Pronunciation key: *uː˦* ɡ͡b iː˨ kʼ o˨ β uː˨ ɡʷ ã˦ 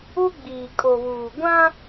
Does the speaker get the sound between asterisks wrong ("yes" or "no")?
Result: yes